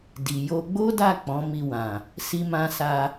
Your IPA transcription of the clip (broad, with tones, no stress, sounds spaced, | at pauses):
d i˨ j o˧ ɡ͡b o˦ d a˦˨ k͡p ɔ̃˨˦ m i˧ w ã˨ | s i˧ m ã˧ s a˧